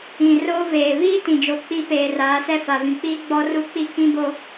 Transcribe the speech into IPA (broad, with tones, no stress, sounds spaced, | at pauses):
ĩ˨ r oː˦ v eː˨ β iː˦ t ĩ˨ d͡ʒ o˨ k͡p i˦ p eː˨ r aː˨˦ s ɛ˦ f a˨ v ĩ˨ k͡p iː˦ ɡ͡b ɔ˦ r u˦ k͡p i˦ k ĩ˦ b o˦